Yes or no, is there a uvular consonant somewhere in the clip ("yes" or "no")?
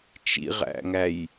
yes